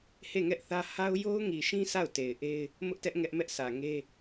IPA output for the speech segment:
he˦˨ŋɛ˦ʔθä˦ ha˦ʊ̯ jo˦ʊ̯ŋi˨ʃĩ˦ sʰa˦˨ʊ̯te˨ɪ̯ʔe˦ɪ̯ | mʊ˦ʔtɛ˦ʔ ŋɛ˦ʔmɛ˦ʔsʰä˨ ŋe˦

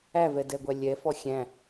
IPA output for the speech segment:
ævɛdɛɡʷæ lʲɛfɔ xʲæ̃

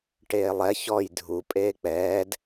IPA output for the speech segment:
ʈeːlˠɛ çɔj dʱu pʼeːk͡pɛːd

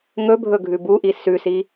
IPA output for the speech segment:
ŋɵbʱɵɡʱʉ buʔi sʉsi

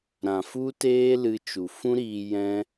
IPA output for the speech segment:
ɾã˨fu˦teː˦ lɨ˧t͡ʃu˨ fũ˦ɾiː˧ jɛ̃˦

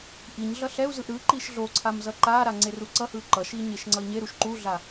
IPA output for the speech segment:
ʔiɲɮʌ ɬɛu̯zɯʔ ɾɯ ǃiʃɮoǀʰam zʌǃaɾa ŋ͡ǀeruǀʌhɯ ǃʌʃi ɲeʃŋ͡ǀʌi̯ɲeɾuʃ ǃuɮa

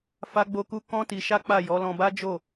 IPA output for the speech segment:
fa˦ɡ͡bo˦ku˦ kɔ̃˦ti˧ʃa˦ k͡pa˦˨ jɔ˨˦lɔ̃˧ ba˦d͡ʒo˦˨

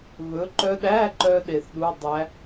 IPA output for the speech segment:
βɵ˨˥ǃœ˦˥ ɗæ˧˥˧ǃœ˧ ɗe˧θɗu˧˥˧dˤæ˦˥

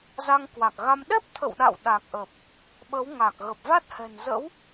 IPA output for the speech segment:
za˧ŋkwa˨˩k̚ɣa˧m ɗɛ˦˥p̚t̪ʰə̰˧˨wɗa̰˧˨w ɗa˨˩k̚ʔə˨˩p̚ | ɓə˨˦wŋa˨˩k̚ ɣə˨˩p̚va˦˥t̚hɛ̤˨˩nzə̰˧˥w

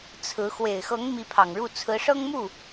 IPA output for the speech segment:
t͡sʰɹ̩˧˥ xwe˨˩ɪ̯xɤ˧˥ŋ mi˧˥pʰɑ˨˩ŋɻu˥˩ t͡sʰɹ̩˧˥ʂɤ˥ŋmu˥˩

